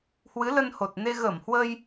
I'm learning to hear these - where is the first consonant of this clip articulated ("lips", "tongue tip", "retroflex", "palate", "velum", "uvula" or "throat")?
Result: throat